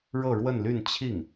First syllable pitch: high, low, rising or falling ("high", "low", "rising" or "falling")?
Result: falling